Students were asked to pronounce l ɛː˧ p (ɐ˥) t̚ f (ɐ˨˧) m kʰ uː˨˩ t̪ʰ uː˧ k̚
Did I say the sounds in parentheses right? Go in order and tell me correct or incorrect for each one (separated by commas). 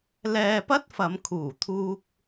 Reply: correct, correct